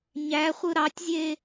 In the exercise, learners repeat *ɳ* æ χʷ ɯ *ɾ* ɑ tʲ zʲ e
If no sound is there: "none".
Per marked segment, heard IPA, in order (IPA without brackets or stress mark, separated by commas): ɲ, ɾ